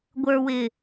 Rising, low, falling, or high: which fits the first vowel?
low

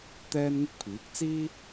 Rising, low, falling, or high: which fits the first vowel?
high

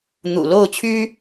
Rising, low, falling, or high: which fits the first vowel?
low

